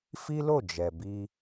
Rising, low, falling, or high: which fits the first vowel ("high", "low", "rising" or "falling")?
high